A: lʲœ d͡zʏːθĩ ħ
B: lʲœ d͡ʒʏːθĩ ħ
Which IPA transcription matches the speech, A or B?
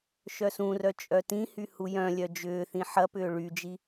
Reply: B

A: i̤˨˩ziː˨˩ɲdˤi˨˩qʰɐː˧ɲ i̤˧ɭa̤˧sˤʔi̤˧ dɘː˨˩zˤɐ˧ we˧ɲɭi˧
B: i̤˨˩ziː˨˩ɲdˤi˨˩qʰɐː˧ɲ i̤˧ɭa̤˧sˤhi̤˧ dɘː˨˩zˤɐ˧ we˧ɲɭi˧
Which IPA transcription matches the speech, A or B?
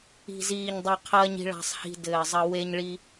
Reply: B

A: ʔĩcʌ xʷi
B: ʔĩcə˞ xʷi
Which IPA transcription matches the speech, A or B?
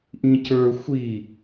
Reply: B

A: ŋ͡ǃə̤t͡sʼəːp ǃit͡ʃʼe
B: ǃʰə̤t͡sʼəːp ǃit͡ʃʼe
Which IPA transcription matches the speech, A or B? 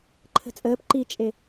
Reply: B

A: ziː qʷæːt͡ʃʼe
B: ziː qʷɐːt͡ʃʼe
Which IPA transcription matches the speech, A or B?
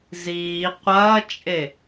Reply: B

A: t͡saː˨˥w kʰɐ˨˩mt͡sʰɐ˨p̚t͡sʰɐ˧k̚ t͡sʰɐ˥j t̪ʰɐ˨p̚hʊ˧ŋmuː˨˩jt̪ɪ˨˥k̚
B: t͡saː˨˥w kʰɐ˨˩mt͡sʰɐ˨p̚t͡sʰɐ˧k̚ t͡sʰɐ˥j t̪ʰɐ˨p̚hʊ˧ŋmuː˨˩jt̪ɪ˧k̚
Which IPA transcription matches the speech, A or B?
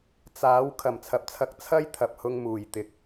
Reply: A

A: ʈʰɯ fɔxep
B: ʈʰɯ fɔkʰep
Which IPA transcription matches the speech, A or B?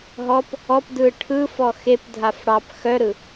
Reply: A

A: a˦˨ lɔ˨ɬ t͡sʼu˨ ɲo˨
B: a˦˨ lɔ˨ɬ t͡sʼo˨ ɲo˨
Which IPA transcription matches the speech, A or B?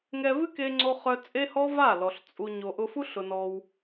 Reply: A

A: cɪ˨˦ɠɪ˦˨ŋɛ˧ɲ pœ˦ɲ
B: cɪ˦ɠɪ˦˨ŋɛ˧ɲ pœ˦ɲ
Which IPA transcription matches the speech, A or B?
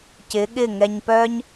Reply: A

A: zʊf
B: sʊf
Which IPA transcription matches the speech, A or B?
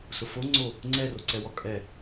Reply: B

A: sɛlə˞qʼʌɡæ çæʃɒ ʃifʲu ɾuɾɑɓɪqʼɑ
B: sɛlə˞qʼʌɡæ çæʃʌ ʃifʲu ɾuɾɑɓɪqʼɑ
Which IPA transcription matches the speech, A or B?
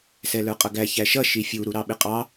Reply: B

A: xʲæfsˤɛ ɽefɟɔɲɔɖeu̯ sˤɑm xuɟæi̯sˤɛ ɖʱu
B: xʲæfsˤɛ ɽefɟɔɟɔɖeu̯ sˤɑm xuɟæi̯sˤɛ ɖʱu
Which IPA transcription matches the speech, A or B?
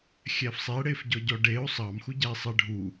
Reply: B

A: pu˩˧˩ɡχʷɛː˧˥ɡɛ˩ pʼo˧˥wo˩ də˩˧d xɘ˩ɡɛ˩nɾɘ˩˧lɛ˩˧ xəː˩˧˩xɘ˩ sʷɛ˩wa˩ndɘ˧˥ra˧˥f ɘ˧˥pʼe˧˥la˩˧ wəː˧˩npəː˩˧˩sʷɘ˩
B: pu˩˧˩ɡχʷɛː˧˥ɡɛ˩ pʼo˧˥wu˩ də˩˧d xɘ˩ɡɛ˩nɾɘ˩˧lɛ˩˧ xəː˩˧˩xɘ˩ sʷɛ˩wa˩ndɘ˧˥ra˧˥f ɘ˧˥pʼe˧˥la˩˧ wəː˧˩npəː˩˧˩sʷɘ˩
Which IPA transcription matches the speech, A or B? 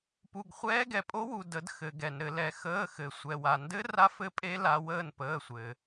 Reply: B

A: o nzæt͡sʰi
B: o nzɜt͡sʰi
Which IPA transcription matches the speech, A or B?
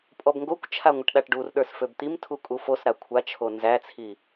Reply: A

